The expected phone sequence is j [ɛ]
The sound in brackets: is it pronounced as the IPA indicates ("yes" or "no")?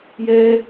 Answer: yes